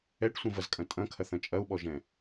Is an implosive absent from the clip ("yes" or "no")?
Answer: no